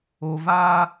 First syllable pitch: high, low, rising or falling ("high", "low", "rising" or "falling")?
low